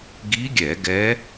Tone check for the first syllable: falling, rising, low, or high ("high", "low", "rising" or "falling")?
rising